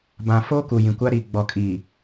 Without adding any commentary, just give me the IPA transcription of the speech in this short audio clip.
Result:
b ã˨ f oː˦ k u˨ j ĩ˨ kʷ a˦ ɾ i˨ ɡ͡b ɔ˨ kʼ iː˨

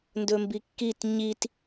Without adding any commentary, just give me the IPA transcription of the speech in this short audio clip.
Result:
n d ɵ m b i kː i t ɲ i t

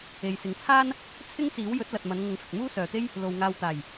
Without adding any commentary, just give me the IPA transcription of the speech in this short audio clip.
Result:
e˨ j s ɪ˨ ŋ t͡sʰ aː˥ n | t͡sʰ ɪ˥ ŋ t͡s iː˨˥ w j ɵ˨˥ t̚ l ɐ˨ t̚ m ɐ˨˧ n ŋ ʊ˨ ŋ f ɪ˨ k̚ m uː˥ s œː˨ t̪ e˥ j | l o˨ w ŋ aː˨ w t̪ aː˨˩ j

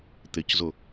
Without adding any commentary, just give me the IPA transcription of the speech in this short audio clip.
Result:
t̪ ɪ c z ʊ

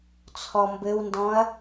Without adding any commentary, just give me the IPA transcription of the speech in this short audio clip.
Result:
t͡sʰ ɔ m b ɘ w n d ɔ̃ ɐ̯

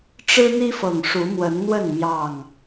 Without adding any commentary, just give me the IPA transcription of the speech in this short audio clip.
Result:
ʈ͡ʂ ɻ̩˦ n̪ i˦ f ɤ˨˩ ŋ ʂ u˨˦ m w ə˨˦ n n̪ w ə˥˨ n m j ɑ˥˨ ŋ

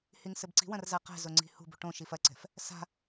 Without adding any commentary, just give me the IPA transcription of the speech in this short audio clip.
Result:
h i ŋ s ɘ b ǀ i̤ w ɐ̃ r z a q ɛ̤ z o ŋ͡ǀ i̤ h ṳ b ṳ ʈ õ ʃ i f ɐ ǀ ɛ̤ f | s a̤

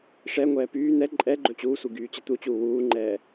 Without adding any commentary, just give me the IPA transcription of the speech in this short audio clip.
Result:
ʂ ɛ ŋʷ ɛː p yː n̪ ɛ ǃʼ ɛ ɡ͡ǃ ɵ t͡ɕ uː sʷ i ɡ yː t͡ɕ ɛ t̪ u t͡ɕ uː w uː ŋ͡ǃ ɛː

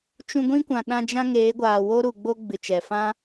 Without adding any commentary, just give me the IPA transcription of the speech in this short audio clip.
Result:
t͡ʃ ũ˧ ɡʷ ĩ˦ kʷ ã˨ ɗ ã˧ d͡ʒ ã˦ ŋ eː˨˦ ɡʷ aː˨ w o˦ ɾ u˨ ɡ͡b o˧ ɡ͡b ɨ˨ t͡ʃ ɛ˨ f ã˦

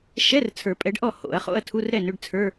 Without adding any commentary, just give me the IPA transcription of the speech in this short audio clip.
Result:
ʃ ɛ˧˥˧ r t͡sʰ ə˞˨˩˦ pʼ ɛ˨˥ ɖ ʔ ɔ˥˩ h o̰˨˩˦ ɐ̯ χ o̰˧˥˧ ɐ̯ tʰ u˧˥˧ r ɾ ɛ˥˩ n ʏ˧˥˧ ɖ t͡sʰ ə˞˧˥˧

